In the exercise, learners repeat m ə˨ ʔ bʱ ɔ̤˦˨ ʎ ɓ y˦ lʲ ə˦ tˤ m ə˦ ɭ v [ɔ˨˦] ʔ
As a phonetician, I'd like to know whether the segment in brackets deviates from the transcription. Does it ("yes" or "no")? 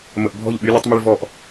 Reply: yes